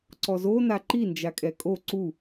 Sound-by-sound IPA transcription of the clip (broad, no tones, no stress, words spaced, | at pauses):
ǀɔzona ǃind͡ʒa kʼɛkʼo ǀu